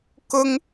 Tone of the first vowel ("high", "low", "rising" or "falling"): high